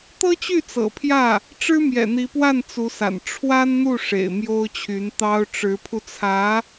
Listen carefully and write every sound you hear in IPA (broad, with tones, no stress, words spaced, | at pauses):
t̪ɤ˥t͡ɕy˥˩ t͡sɤ̰˨˩pʰjä˥˩ | ʈ͡ʂɻ̩˥mjɛ̰˨˩n̪i˧˥pwa˥˩n t͡su˧˥sa̰˨˩n ʈ͡ʂʰwa˥nn̪u˥˩ ʂḛ˨˩ɪ̯mjo˥ʊ̯t͡ɕʰy˧˥n t̪ɑ˥ʊ̯ ʈ͡ʂɻ̩˧˥pʰu˧t͡sʰä˧˥